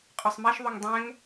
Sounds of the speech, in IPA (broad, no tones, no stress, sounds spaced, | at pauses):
qʼ ʊ sˤ m ɛ ʃ ðˤ u ŋ dˤ ɛ̃ ŋ